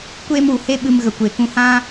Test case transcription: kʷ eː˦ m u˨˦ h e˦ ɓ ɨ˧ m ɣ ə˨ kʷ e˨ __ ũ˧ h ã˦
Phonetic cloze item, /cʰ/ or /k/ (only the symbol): k